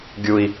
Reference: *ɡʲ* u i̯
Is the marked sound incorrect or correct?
correct